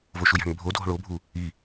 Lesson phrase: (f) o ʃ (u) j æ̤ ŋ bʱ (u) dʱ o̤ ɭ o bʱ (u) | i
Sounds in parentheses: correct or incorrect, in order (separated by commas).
incorrect, correct, incorrect, correct